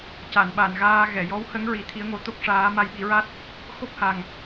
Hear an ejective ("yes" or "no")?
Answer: no